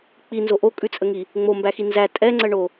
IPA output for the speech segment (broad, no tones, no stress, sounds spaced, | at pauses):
k͡p i n z o ʔ o kʼ ʉ t͡sʼ ə ŋ i | ŋ͡m o m b æ x i n z æ tʼ ɛ ŋ͡ǀ ə ɳ o